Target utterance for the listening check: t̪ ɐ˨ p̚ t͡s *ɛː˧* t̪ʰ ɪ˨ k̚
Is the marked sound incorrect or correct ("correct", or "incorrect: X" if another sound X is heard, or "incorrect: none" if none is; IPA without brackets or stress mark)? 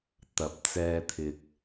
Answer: correct